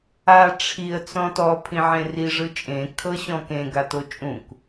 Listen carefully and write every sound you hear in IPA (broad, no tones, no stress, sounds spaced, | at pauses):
a ʈ͡ʂʰ i ə̯ t͡s ɔ̃ t ɔ pʰ ĩ ʕ ẽ r i ʐ ɯ t͡ʃʼ ẽ kʰ ɤ ɕ ɔ̃ k ẽ ɡ a t o t͡ʃʼ ũ k